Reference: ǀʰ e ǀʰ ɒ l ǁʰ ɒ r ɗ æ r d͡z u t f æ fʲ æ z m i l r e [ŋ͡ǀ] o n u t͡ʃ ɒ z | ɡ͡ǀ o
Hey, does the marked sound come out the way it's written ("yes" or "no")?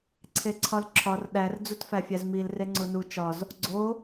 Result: yes